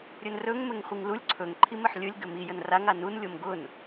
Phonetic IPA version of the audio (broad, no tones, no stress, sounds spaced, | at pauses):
ɾʲ ɵ n r ɵ ŋ m ɘ ŋ χʷ i ŋ l u lʲ ǀʰ ɵ ŋ ǃʰ i m ɘ ħ lʲ ɵ lʲ ɡ ɘ m i j ə n r a ŋ a n u n lʲ o m ɡ ʊ n